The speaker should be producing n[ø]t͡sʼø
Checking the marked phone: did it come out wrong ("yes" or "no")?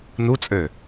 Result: yes